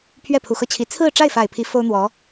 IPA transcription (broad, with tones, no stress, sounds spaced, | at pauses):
pʰ ɥ ɛ˥˩ pʰ u˨˩ x ɤ˥˩ t͡ɕʰ i˧˥ t͡sʰ ɹ̩˥˧ ʈ͡ʂ a˥˩ ɪ̯ f a˨˩ ɪ̯ pʰ i˧˥ f o˥ ʊ̯ n̪ w ɔ˧˥